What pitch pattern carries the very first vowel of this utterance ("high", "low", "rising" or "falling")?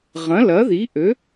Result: rising